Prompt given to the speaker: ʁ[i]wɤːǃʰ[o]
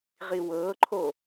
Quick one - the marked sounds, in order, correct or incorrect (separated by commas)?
correct, correct